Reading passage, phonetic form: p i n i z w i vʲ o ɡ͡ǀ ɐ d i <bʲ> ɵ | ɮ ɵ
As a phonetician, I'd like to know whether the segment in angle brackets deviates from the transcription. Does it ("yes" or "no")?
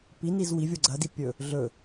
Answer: yes